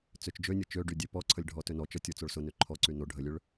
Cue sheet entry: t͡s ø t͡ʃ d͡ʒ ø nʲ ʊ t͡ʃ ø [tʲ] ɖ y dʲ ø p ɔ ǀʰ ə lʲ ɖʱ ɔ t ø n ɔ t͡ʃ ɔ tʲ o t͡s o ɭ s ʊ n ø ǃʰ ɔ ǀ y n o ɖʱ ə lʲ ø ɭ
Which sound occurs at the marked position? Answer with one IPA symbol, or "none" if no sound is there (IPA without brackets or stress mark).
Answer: none